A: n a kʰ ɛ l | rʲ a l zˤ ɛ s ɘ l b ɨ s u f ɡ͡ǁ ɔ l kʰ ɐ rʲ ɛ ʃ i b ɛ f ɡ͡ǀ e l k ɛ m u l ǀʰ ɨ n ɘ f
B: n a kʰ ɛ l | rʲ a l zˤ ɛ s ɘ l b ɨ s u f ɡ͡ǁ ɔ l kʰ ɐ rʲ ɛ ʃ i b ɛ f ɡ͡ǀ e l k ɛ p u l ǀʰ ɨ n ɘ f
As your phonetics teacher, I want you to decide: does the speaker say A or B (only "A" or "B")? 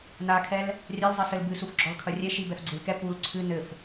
B